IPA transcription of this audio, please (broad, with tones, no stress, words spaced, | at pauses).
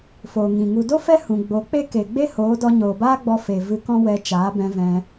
foː˨ŋĩ˨ ŋu˨do˦ fɛ˦ hũ˨ɡ͡bo˨˦k͡pe˦ ke˨ ɡ͡be˦hoː˨˦dɔ˧ ɲoː˨baː˦ɡ͡bɔ˧ fe˨ vɨ˧kɔ̃˦ wɛ˧ t͡ʃaː˨˦bɛ̃˧vɛ̃˧